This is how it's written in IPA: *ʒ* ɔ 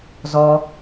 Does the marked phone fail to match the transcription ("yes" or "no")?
yes